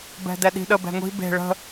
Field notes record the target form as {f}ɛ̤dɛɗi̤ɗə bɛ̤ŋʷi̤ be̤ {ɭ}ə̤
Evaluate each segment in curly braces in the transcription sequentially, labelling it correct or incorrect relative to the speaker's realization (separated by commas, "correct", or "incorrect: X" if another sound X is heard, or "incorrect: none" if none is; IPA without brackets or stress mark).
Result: incorrect: b, correct